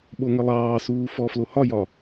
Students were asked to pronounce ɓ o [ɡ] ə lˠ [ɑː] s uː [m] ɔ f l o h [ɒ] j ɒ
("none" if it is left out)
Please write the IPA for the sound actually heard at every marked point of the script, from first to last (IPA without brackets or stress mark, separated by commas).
ŋ, ɑː, f, ɒ